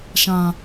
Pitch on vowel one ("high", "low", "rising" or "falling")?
low